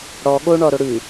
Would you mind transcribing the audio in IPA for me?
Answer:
ɽɔ ɠoɳɔɾo ɽʉ

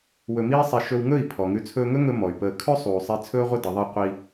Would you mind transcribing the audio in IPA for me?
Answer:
wɵ˧miː˦sˤi˧ ʃɵ˧wŋɵ˦˨i̯ pʰɔ˨ŋʉ˧ t͡sʰɵː˧ŋɵ˦ŋɵ˧ mɔ˨y̯pəː˧ kʰɵ˦ sˤuː˨sˤi˧ t͡sʰɵː˦ʁʷə˦ də˨˦ðˤi˦ qʷi˧

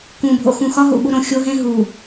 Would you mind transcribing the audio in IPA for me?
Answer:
kũ˨ bʱo̰˨xũ˨xɒ˦ɦṵ˨ ɓu˦ɾõ˨ xʲo˦ɦẽ˦ɦu˨

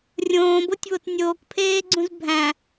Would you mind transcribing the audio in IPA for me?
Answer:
rʲõːbotʲβot nʲoːkpʰeːɡ͡ǀũz bʱæ̃

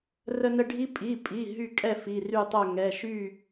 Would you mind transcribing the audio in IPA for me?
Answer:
rə˥nə˥ ɖʱi˥ pʼi˩˧˩pʼi˩˧˩ ɦy˥˨kʼɛ˥˨ fi˩˧˩ry˥˨tˤœ˥˨ ŋɛ˩˧˩ʃy˥˨

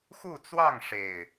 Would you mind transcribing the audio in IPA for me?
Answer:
xu˥˨t͡swɑ˥˨ŋʂe˨˩ɪ̯

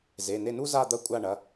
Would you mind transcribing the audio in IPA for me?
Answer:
ze˩˧˩ne˦˨nu˥ za˦˨d̪ɐ˦˨kʷʼa˦˨ɳɐ˩˧˩

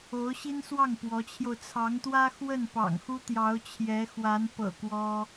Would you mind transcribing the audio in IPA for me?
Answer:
o˧˥ʊ̯ɕi˥nswɑ˥˩ŋ pwɔ˧˥t͡ɕʰjo˧ʊ̯ t͡sʰɑ˧˥ŋt̪wä˥xwə˥˩n pɑ̰˨˩ŋxu˥ t̪jɑ˧˥ʊ̯t͡ɕʰjɛ˧˥ xwa˧˥npɤ̰˨˩ kwɔ˥

